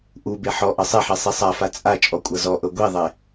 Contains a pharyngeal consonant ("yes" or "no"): yes